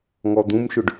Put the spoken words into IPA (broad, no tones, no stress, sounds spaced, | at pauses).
ŋ ɔ d̪ ũ m ʃ ʏ ɖ